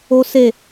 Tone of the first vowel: high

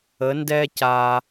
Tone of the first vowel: rising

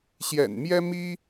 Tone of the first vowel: low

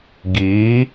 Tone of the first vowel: rising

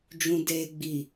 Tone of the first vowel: low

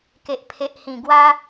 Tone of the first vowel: low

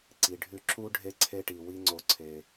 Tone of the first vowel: low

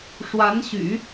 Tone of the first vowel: rising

